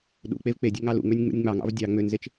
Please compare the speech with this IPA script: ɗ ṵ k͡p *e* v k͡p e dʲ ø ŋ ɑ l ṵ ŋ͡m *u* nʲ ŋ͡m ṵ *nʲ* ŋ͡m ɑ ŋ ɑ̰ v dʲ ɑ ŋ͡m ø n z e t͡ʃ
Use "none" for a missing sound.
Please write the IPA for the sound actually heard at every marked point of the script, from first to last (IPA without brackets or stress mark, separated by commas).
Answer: e, ø, nʲ